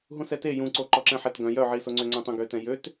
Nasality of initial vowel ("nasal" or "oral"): nasal